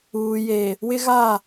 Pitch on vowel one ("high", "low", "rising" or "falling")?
low